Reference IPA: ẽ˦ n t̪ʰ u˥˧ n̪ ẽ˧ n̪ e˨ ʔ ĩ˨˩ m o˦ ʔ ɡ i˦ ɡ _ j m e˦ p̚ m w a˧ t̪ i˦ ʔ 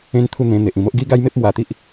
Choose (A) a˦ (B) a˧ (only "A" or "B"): A